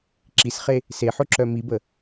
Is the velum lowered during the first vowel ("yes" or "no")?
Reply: no